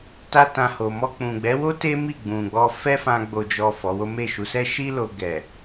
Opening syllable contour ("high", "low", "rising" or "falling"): high